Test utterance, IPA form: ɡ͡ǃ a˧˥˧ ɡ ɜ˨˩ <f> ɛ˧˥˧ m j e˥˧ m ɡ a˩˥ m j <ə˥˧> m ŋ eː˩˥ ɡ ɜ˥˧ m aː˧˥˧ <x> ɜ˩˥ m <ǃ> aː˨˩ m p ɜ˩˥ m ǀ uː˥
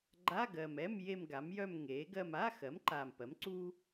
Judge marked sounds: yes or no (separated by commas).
no, no, yes, yes